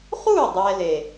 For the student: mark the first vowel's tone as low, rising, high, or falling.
falling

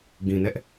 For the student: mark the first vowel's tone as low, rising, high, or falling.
low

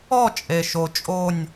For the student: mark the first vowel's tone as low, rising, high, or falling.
falling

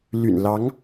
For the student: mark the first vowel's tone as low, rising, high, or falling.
low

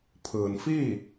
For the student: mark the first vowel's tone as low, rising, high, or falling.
low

